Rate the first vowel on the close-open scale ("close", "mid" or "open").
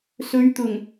mid